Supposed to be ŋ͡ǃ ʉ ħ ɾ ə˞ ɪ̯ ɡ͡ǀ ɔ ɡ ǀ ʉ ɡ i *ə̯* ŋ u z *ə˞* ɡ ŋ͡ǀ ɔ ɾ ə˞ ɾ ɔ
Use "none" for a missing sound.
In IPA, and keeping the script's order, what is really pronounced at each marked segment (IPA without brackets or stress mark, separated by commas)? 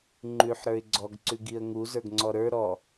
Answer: ə̯, ə˞